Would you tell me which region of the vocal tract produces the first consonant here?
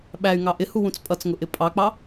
lips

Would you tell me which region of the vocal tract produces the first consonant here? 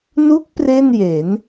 tongue tip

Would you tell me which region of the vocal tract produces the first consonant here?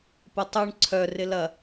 lips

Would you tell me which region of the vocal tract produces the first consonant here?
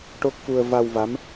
retroflex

